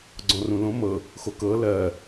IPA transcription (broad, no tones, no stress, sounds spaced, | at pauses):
ɡ͡ǀ ɔ̃ r ũ l õ m ɤ | x o k ɤ l ɜ